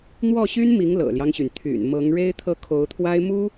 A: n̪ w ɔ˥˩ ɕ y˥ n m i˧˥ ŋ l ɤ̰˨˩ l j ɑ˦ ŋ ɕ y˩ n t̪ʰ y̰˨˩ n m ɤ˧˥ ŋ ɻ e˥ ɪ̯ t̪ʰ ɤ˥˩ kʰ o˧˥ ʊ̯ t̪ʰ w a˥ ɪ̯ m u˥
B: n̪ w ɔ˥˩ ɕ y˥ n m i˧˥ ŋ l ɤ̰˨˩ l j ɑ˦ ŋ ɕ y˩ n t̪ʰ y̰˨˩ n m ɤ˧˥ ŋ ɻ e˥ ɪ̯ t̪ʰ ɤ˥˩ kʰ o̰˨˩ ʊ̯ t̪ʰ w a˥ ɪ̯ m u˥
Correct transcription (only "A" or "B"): A